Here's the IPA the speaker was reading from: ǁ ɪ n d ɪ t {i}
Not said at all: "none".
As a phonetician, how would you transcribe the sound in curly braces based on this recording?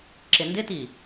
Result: i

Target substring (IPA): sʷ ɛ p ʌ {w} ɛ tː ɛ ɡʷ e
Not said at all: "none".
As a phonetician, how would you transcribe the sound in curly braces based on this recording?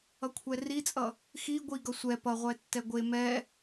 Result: ʁʷ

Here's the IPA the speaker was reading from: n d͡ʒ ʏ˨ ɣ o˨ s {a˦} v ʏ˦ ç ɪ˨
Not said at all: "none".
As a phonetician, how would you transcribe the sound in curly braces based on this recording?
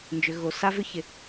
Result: a˦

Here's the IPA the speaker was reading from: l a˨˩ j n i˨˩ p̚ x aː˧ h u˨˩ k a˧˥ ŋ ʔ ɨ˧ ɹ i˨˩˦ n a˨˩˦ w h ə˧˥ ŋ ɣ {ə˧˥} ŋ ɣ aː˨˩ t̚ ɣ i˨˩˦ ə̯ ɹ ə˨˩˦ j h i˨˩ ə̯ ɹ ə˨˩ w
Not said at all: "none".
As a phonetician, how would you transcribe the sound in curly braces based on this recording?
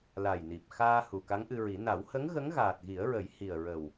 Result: ə˧˥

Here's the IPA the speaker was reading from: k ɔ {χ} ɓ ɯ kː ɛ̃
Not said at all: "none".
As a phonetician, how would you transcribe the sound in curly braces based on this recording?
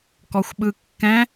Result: xʷ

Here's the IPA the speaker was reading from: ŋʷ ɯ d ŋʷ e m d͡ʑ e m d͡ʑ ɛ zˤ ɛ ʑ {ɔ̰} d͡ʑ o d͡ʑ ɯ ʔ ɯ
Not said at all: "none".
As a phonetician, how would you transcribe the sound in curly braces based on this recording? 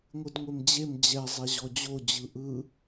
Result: ɔ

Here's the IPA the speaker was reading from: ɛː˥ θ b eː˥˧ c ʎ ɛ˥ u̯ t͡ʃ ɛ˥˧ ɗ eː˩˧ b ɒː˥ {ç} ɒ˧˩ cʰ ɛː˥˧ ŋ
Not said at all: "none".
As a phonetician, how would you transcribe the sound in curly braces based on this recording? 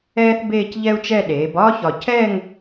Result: ç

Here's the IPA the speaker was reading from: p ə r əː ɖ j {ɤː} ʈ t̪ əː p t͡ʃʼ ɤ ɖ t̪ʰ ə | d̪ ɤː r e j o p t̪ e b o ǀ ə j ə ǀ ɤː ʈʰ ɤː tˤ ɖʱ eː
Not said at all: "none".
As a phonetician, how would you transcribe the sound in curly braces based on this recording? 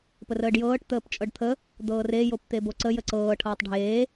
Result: ɤː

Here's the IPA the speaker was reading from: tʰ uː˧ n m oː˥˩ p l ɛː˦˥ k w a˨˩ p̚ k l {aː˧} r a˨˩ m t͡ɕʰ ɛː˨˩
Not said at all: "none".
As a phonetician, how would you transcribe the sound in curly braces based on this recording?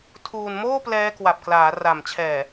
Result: aː˩˦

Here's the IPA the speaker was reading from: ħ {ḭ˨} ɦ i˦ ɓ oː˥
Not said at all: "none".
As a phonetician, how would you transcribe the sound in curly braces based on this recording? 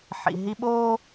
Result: ḭ˨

